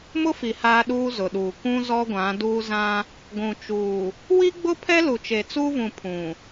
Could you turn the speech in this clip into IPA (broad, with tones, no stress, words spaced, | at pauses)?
mʊ˦fi˨ haː˦ɗuː˦zʊ˨ɗuː˨ kʷũ˦ zɔ˦ɡʷã˨˦duː˦zã˦ | ɡʷũ˨t͡ʃuː˨ | wi˦ɡ͡bʊ˦pʰɛ˦lu˨ t͡ʃe˨t͡suː˦vũ˨ pʰũ˨